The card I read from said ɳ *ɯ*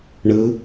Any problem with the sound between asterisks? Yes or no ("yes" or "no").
no